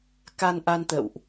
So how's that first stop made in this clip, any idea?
plain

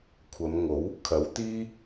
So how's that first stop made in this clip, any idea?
aspirated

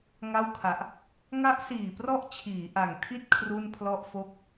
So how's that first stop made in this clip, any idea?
aspirated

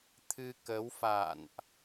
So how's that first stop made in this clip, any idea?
aspirated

